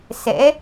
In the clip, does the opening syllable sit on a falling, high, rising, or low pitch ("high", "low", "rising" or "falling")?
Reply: rising